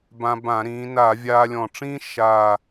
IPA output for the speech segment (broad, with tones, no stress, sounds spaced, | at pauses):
b ã˧ b ã˧˩˧ ɾ ĩː˩˧ n a˧˩˧ vʲ aː˧ lʲ ɔ̃˨˩ ʈ͡ʂ ĩː˥ ʃ aː˨˩